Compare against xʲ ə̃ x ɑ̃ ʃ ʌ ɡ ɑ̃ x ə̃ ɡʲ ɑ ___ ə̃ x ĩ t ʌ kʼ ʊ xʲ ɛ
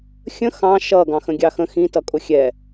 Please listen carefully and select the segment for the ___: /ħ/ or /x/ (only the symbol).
x